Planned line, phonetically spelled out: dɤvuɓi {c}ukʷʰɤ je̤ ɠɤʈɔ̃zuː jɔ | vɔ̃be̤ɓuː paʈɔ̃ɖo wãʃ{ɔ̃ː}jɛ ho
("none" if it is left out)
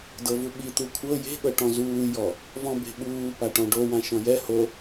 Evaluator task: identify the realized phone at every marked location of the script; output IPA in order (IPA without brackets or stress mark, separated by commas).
t̪, ɔ̃